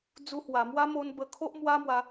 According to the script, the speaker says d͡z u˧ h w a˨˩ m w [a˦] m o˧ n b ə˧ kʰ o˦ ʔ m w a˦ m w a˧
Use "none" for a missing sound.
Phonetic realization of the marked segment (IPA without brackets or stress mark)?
a˦